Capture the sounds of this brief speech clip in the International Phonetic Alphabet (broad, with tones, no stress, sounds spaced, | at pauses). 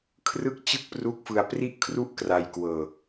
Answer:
kʰ r ɯ˦˥ k̚ t͡ɕ ɯ˥˩ k̚ p r u˦˥ k̚ f ɯ˧ a̯ p r i˥˩ ʔ kʰ r u˥˩ ʔ k r a˧ j k w ɤː˧